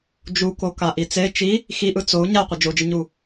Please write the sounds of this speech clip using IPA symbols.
d͡ʒukoka ʔit͡se t͡ʃi | xiʔɯ t͡sou̯ ɲaqʷɯ d͡ʒod͡ʒɯɲu

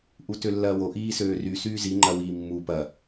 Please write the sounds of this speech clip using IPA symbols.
ʔutølːɐːwo ʔiːsøːry syːzi ŋ͡ǃɐwiːmːu pɐ

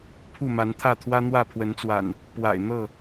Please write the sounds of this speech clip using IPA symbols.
pʰu˥˨ma˨˦nt̪ʰä˥˨t̪ʰwä˦ n̪wä˥˨pʰwə˨˦nt͡swa̰˨˩n | pwa̰˨˩ɪ̯n̪ɤ˥˨

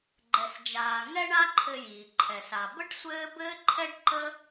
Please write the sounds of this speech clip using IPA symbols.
ɡ͡ǃɛ˩sd͡ʒaː˩ ŋɛ˥ɳa˥ǃʰɘ˧jiː˩ ǃʰɛ˩sa˩ bə˥ɖ sʷɘː˥ bɘː˥ǃʰɛ˥ɖǃə˥

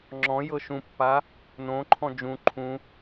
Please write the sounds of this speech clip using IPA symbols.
ŋ͡ǁɔ̃ jɤʃũpːa | nõǃʰɔ̃ d͡ʒũ ǃʰũ

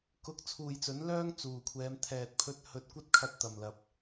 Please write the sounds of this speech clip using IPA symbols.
kʊ˧k̚ t͡sʰuː˨jt͡sɵ˨˥n lœː˥ŋ t͡suː˨˩kʷʰɛː˨˧m t̪ʰɛː˨t̚pʰɵ˧t̚ hɵ˧t̚kʷɐ˥t̚kʰɐ˧t̚ t̪ɐ˨mlɐ˧p̚

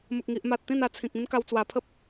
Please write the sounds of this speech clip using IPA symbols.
mə˨k̚ŋi˨ʔma˨t̚ t̪ĩ˥˧na˧t͡sʰĩ˨k̚ ĩ˦n ka˧wt͡swa˧ pʰə˦p̚

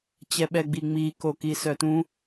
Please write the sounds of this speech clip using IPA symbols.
t͡ɕɛɓɛɡ͡biŋ͡mi kokisœtũ

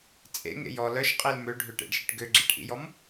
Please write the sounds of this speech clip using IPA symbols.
t͡sʼḛŋḛj ɔ lœʃqʼil møɖʱøʈḛɖʃiʈ ɡøɡ͡ǁeʈʔḭjɔm

